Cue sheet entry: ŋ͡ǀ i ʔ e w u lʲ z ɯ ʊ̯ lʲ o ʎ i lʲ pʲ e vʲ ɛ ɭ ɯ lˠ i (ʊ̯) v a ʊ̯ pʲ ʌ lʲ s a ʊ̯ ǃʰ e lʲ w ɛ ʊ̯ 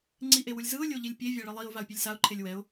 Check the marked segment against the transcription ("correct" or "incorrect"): correct